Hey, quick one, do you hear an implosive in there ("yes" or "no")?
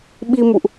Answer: yes